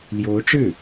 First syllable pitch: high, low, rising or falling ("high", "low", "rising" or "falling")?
rising